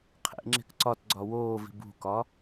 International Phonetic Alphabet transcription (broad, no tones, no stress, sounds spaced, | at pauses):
qʰ ḛ ŋ͡ǁ e̤ k ǀ ɒ t ɡ͡ǀ ɒ w oː v i̤ b ṳ k ɒ